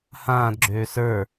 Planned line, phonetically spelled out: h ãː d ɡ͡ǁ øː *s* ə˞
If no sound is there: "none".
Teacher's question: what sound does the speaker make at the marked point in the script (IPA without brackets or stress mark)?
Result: s